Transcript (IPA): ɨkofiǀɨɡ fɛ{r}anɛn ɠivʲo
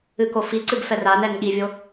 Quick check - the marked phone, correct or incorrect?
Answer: correct